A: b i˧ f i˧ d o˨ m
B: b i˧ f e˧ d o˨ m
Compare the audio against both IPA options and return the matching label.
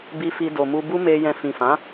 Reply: A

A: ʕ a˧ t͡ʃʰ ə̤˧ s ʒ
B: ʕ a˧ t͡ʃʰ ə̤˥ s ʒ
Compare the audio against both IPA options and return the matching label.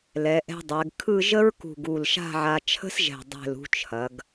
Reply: B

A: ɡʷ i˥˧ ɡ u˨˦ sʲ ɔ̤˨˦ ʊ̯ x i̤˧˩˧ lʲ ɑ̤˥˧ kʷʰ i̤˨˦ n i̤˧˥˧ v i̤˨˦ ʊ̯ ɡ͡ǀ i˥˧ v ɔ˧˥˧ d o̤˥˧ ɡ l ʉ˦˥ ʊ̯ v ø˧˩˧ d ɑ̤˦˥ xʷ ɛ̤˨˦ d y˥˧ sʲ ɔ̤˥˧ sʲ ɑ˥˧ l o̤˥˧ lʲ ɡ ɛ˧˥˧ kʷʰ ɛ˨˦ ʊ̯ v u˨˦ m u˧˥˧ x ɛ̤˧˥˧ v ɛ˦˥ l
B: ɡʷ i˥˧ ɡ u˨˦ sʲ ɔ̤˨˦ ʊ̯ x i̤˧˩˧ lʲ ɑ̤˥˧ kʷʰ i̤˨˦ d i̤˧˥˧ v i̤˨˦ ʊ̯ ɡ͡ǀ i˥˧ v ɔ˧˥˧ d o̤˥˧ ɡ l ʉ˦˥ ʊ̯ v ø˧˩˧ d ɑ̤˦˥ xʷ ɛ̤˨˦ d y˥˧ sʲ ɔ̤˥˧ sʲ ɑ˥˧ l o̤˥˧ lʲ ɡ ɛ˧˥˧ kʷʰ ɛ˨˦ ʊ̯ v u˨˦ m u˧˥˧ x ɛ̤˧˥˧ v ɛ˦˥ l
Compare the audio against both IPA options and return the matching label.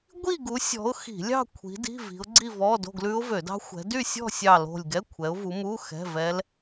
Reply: B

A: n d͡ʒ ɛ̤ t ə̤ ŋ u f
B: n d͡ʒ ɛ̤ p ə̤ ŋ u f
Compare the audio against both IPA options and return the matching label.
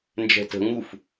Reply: A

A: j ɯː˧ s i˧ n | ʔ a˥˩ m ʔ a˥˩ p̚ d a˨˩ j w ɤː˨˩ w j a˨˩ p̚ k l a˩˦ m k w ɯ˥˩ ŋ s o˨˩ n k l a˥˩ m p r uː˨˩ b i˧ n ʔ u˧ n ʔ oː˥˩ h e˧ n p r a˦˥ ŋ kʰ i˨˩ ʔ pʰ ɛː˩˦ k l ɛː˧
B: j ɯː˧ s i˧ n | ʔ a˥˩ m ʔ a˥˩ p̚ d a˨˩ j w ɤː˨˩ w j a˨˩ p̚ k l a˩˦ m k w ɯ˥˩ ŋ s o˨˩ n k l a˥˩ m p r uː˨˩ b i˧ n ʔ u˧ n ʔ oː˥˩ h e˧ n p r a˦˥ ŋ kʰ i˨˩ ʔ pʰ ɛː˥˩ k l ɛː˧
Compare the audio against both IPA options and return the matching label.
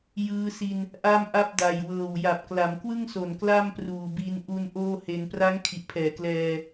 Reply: A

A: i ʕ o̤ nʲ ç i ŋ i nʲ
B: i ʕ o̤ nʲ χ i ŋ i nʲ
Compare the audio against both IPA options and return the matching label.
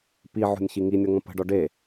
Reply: A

